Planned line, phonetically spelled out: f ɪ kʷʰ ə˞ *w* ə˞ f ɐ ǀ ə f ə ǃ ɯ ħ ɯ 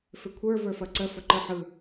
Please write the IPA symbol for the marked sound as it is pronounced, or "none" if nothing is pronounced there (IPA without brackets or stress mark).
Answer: v